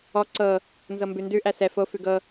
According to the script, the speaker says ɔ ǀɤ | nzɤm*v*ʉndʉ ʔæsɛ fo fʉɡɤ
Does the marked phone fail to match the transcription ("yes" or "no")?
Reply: yes